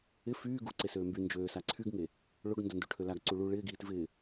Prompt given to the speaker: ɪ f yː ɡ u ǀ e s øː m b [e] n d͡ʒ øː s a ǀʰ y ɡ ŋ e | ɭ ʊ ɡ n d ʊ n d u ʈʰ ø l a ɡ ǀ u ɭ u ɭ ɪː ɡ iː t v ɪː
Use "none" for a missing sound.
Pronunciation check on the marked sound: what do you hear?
y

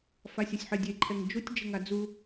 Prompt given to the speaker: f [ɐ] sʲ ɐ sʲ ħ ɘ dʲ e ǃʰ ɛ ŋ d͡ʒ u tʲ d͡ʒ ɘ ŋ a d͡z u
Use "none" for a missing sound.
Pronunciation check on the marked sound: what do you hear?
a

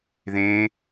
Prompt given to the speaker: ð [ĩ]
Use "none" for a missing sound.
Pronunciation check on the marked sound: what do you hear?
ẽ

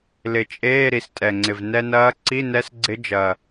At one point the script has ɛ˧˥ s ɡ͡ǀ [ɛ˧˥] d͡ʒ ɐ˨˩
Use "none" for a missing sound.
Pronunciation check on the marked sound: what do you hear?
ɪ˧˥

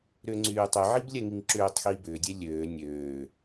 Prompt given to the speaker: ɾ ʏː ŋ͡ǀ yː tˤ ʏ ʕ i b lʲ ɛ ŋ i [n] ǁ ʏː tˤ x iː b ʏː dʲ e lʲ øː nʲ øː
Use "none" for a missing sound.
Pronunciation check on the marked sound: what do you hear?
ŋ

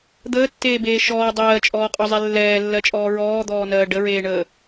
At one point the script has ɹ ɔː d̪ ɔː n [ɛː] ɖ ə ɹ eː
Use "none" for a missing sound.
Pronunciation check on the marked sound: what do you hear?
ɜː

